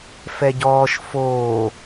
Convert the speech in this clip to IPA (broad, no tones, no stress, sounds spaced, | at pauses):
f ɛ ɟ ɔː ʃ f oː